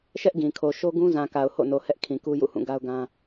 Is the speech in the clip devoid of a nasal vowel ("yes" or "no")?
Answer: no